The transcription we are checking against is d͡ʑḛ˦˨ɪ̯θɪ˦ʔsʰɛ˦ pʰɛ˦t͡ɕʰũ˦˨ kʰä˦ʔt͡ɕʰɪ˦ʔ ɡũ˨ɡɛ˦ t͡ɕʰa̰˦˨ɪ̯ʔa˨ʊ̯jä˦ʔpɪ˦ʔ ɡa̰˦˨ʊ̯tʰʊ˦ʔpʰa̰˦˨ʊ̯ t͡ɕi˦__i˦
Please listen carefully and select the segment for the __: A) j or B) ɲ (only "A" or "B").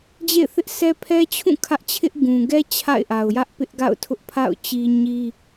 B